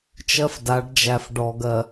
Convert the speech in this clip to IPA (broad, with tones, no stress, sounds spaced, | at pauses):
t͡ʃ ɜ˦ f d a˨˦ ɖ d͡ʒ æ˨ f ɖ ɔ˨ ɡ ɜ˨